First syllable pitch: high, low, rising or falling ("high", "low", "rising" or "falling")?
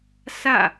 falling